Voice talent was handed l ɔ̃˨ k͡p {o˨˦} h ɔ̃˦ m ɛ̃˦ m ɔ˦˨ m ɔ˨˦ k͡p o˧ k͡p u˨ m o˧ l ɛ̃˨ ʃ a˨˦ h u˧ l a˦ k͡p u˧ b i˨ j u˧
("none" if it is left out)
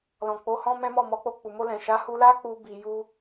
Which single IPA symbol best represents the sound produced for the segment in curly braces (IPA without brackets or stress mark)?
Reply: o˨˦